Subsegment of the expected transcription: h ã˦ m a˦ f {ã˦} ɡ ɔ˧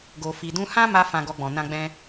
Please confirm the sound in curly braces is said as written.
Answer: no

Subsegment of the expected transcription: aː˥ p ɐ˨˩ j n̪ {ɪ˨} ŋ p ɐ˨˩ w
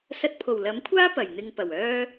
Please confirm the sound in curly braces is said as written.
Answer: no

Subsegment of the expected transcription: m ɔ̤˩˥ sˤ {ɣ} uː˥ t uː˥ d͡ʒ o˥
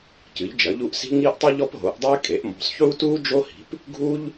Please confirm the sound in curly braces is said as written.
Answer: no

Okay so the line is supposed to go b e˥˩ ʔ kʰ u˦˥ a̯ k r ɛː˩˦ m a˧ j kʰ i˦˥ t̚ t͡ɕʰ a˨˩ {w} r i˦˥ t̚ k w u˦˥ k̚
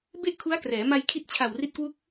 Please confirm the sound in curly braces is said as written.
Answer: yes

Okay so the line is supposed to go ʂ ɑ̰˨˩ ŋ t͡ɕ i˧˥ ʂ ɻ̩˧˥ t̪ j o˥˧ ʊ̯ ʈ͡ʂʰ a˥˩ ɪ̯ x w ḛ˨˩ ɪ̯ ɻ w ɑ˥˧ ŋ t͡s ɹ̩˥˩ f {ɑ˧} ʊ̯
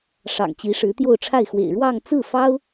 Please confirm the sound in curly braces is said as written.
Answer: no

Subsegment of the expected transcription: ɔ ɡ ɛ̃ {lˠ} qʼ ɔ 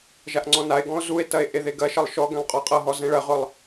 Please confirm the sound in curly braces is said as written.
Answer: yes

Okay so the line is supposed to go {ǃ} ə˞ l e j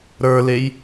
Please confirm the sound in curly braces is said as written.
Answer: no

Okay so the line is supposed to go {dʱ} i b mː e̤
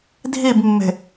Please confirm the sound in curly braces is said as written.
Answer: yes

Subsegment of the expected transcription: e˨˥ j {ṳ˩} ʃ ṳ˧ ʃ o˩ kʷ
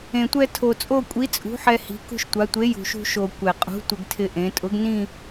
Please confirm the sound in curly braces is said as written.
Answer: yes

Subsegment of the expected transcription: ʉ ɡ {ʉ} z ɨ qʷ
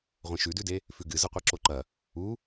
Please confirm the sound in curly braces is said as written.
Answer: no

